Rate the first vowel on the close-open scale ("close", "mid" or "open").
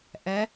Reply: mid